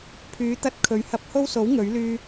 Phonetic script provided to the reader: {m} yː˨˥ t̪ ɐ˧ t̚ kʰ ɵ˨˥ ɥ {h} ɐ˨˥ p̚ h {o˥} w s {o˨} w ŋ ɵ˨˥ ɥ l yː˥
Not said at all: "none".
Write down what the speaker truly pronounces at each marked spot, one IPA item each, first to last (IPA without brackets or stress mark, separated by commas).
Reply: pʰ, h, o˥, o˨˥